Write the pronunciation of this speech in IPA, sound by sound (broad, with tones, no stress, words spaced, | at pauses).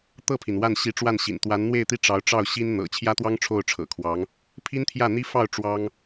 t̪ɤ˥˩pʰi˩n wa˥˩n ɕi˧˥ʈ͡ʂwa˥˩nɕḭ˨˩n t̪wa˧˥n n̪we˥˧ɪ̯t̪i˥˩ ʈ͡ʂɑ˧˥ʊ̯ʈ͡ʂɑ˥˩ʊ̯ɕi˥n n̪ɤ̰˨˩ t͡ɕʰjä˥t̪wɑ˥ŋ ʈ͡ʂʰo˥˩ʊ̯ʈ͡ʂʰɤ̰˨˩kʰwɑ˧˥ŋ | pʰi˥nt̪ʰjä˥˩n̪i˥fɑ˥˩ʊ̯ ʈ͡ʂwɑ˥ŋ